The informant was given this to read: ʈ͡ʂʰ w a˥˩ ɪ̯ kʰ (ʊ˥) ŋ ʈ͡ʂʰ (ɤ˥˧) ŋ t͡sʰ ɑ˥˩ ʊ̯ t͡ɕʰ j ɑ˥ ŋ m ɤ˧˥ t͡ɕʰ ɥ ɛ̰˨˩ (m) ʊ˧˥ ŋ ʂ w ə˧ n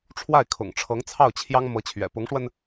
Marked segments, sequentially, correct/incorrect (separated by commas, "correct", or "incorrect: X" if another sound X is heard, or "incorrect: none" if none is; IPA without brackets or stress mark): incorrect: ʊ̰˨˩, incorrect: ɤ˧˥, incorrect: p